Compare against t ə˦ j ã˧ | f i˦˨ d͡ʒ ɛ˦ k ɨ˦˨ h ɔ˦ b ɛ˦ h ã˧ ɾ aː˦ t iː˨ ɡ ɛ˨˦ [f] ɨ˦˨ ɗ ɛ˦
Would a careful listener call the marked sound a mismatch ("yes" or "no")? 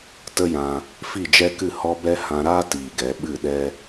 yes